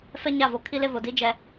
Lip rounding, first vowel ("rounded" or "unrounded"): unrounded